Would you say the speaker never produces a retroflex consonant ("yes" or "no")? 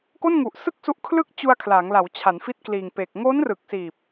yes